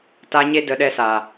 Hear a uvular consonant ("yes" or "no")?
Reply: no